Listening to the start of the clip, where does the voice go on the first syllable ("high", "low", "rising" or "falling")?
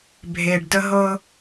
low